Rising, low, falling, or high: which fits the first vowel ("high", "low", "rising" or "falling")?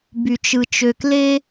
low